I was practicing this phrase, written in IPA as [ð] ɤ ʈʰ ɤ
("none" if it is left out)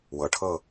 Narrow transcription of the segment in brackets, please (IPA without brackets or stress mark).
w